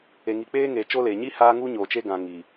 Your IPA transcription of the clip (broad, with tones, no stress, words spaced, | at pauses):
e˨ŋi˨k͡peː˦ŋeː˨ t͡ʃo˦ leː˨ ɲi˦ haː˦ŋu˦ɲoː˨ t͡ʃe˦ɡã˨ ŋi˨